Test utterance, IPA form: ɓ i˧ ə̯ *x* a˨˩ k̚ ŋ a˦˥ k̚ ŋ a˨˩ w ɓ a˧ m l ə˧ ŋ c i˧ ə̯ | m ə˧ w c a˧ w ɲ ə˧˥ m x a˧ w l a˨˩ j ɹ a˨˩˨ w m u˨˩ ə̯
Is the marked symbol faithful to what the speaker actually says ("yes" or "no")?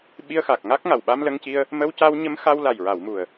yes